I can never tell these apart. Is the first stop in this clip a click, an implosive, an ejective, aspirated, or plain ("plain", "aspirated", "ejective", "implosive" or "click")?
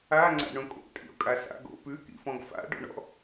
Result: click